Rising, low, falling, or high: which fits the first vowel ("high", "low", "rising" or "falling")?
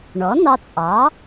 rising